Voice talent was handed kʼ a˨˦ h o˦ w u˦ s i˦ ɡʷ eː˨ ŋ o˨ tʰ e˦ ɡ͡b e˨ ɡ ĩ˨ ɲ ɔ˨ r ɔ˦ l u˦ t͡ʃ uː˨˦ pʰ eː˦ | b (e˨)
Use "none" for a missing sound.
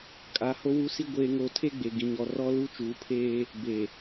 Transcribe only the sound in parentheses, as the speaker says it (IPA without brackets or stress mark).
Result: e˨